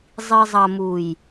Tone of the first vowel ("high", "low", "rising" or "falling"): low